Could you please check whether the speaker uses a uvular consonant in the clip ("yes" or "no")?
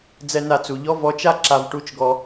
no